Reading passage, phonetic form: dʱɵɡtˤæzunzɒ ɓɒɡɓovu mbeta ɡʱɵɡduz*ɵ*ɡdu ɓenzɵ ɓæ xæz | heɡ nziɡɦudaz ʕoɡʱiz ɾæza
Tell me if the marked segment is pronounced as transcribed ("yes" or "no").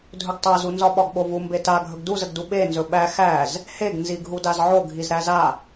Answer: no